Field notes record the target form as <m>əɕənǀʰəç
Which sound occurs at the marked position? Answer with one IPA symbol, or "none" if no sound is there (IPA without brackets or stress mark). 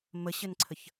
m